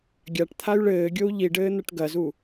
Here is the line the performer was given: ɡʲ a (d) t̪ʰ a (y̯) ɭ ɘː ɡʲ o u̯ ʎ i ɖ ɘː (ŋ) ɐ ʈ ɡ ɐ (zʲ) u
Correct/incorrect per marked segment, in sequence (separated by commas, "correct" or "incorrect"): incorrect, correct, incorrect, incorrect